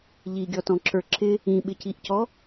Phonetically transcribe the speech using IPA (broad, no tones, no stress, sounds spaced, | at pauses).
ʎ i ɡʲ ɔ t ɔ̃ ǁ ə˞ ǁ ɪ | ĩ ɓ ɪ c i ʔ c ɔ